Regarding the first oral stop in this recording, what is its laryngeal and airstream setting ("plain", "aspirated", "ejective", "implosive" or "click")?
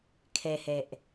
aspirated